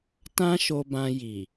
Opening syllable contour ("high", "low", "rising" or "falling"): high